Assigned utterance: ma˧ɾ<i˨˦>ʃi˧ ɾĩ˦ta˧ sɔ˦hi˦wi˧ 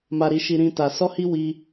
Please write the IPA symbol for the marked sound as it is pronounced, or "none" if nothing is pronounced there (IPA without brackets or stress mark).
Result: i˧